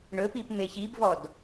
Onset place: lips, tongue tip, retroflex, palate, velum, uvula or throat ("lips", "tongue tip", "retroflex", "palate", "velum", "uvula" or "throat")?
retroflex